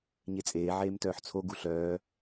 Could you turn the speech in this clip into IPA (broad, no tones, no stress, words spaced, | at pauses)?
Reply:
ɲet͡sʼeː ʕeːmtœːħt͡sʰo ɡuɬœː